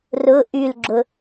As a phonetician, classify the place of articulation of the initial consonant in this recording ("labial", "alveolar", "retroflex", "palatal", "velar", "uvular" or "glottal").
alveolar